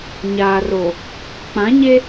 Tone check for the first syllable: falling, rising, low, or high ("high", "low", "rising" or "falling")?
low